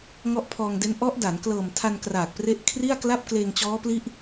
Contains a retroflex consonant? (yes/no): no